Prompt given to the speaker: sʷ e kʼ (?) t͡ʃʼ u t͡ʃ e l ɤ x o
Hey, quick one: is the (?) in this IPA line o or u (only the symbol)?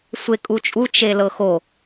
u